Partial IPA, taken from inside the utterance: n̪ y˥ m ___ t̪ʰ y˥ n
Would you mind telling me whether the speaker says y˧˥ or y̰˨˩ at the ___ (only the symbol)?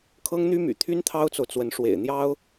y̰˨˩